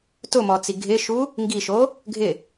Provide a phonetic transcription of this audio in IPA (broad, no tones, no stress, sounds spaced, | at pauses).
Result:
t ʊ m ɔ t͡s i ɡʱ ɪ ʃ u | ŋ ɡ i ʃ o | ɡʱ ɪ